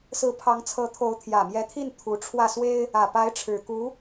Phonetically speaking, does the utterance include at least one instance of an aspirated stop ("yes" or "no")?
yes